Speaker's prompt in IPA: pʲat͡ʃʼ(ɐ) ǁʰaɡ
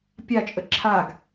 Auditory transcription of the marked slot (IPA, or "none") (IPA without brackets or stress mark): ə